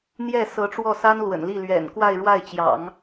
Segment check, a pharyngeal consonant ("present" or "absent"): absent